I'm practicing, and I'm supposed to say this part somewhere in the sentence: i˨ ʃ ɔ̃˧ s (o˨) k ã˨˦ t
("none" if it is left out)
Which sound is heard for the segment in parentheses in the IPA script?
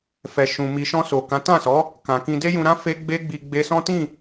o˨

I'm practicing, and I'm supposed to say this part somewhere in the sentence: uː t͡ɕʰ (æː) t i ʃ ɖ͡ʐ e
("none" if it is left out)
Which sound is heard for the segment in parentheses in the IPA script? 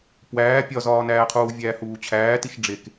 æː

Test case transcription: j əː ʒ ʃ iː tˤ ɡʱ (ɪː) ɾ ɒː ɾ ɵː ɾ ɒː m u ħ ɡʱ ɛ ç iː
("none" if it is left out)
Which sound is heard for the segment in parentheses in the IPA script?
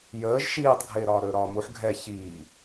ɪː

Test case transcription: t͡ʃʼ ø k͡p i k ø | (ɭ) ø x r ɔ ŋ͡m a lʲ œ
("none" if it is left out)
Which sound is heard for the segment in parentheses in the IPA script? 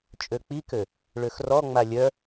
ɭ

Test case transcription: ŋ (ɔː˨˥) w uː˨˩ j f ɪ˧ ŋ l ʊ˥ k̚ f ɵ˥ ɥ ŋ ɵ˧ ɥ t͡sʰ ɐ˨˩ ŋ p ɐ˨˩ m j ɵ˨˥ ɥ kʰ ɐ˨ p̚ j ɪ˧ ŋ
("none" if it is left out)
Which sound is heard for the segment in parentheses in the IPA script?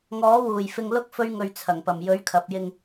ɔː˨˥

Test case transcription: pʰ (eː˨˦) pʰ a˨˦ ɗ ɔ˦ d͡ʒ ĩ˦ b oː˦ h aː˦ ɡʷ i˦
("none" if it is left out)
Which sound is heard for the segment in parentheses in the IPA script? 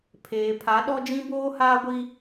eː˨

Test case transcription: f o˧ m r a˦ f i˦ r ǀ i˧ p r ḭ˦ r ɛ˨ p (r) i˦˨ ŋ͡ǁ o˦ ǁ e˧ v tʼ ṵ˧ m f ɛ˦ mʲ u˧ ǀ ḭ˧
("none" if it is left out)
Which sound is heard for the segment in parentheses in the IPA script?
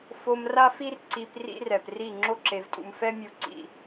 r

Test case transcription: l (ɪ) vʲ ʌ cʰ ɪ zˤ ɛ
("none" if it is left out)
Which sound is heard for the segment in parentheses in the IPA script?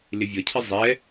ɪ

